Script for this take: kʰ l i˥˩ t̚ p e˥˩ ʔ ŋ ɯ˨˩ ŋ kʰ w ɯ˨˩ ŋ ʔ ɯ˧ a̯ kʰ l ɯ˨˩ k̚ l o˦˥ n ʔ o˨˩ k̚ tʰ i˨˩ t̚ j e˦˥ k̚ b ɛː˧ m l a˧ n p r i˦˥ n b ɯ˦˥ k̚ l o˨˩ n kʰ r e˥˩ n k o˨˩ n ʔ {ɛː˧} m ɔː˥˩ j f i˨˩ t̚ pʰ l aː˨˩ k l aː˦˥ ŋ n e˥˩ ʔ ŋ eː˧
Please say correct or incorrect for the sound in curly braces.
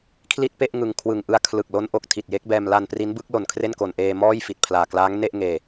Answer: incorrect